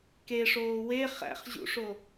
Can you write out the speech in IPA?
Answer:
k e ʂ oː w e χ æ̰ χ ʑ ṵ ʂ o

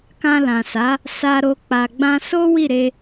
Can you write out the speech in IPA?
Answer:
k ã˧ l ã˨ s a˨˦ | s a˧ ɾ o˧ k͡p a˨ ɡ͡b ã˧ s o˦ w i˦˨ ɾ e˧

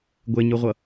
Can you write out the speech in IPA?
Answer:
ɡʷ e ɲ ɯ ʁʷ ʌ

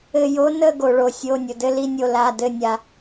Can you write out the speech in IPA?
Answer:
ɘ˧˩ j o˧˥ n ə˥˨ ɡ o˩ ɭ o˩ sʲ o˩˧˩ nʲ ʊ˩ d ɘ˥˨ l i˥˨ nʲ o˧˩ l a˩˧˩ d ɘ˧˩ nʲ a˩

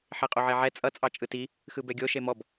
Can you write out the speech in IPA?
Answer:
ħ e qʼ o ʕ e ʕ ɛ t͡sʼ ʌ t͡sʼ ɑ t͡ʃʼ ɯ t i | x ɯ b ɛ ɡʲ o ʃ e m ɔ b

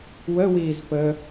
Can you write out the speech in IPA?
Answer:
w ə w iː z p ə

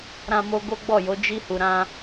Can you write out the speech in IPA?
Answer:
ɾ ã˧ m o˧ ɡ o˦ ɡ͡b ɔ˦˨ j o˨˦ d͡ʒ i˧ h u˨ ɾ ã˧

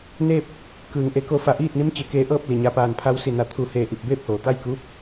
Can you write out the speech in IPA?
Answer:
n eː˥˨ p̚ | k ɯː˩ ŋ ʔ e˧˩ k o˧ f a˧˩ ʔ iː˥˨ t̚ n i˧˥ m t͡ɕ e˩ k eː˧ ʔ ɤː˥˨ p̚ l i˩ ɲ a˩˧ p aː˩ n pʰ a˧ w s i˧˩ n a˧˩ t̪ʰ uː˧˩ h eː˧˩ ʔ i˧˩ p̚ b eː˥˨ p̚ h oː˩ t̪ a˥˨ j k uː˧˥ p̚

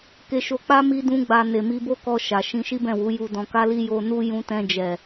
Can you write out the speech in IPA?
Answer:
k e˧ ʃ o˧ k͡p a˦ m i˦ d ũ˦ ɡ͡b a˧ n e˨ m i˧ b o˦ k ɔ˧ ʃ a˨ ʃ ĩ˧ ʃ i˦ b ɛ̃˦˨ w u˨˦ j u˧ d ɔ̃˧ k a˦ l i˦ j o˧ n u˦ j ũ˧ t ɛ̃˧ d͡ʒ ɛ˨

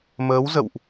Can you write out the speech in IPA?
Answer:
m əː˨˦ w z ə̰˧˨ w ʔ

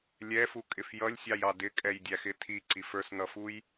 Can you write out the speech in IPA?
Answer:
lʲ ɛ f u kʼ ɪ f j ʌ lʲ sʲ ɑ j ɑ d ɪ kʼ ɛ j dʲ æ x ɪ tʰ i ǀ i f ə˞ s n̪ ʌ f u j

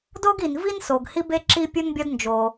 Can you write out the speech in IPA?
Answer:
d o˥ ɡ i˩ n v i˥ n s o˩ ɡ h i˥ b e˥ ǁ i˥ pʲ u˥ n bʲ ɒ˥ d n d͡ʒ o˩

